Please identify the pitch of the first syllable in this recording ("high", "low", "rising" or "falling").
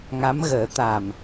rising